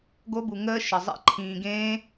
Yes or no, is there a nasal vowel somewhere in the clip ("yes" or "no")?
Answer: yes